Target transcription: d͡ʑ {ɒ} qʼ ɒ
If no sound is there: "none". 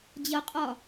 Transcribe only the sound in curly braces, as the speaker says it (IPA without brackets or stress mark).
ʌ